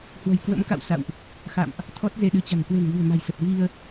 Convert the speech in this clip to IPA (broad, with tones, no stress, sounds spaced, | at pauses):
h w ə̤˨˩ j k w ə̰˧˥ m k a̰˧˨ w s a̰˧˨ w ʔ | x a̰˧˨ m ʔ | t̪ʰ ɔ˦˥ t̚ z e˧ ɗ ɨ˨˦ t͡ɕ a̤˨˩ ŋ k w e̤˨˩ n v ɨ̤˨˩ ə̯ m a̤˨˩ j s ə˨˩ t̚ v i˧ ə̯